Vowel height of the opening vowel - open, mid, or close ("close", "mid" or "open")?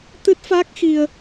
close